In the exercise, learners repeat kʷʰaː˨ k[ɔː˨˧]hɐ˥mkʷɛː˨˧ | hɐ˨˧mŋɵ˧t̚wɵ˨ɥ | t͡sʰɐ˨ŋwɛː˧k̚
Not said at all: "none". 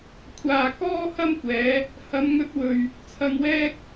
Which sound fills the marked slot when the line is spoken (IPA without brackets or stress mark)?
ɔː˥